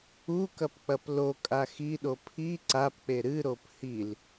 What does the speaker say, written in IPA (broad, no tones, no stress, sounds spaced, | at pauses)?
u k ɐ p k͡p ɐ p l o kʼ a x i ɗ o pʰ i ǀ a p k͡p e ɾ ɨ ɾ o p h i l